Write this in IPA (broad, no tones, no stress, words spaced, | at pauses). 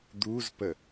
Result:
d̪uzpə